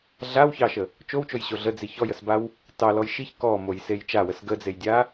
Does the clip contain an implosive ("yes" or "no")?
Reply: no